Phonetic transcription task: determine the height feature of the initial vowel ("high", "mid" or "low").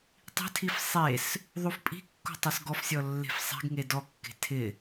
high